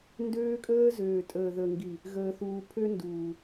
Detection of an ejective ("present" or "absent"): present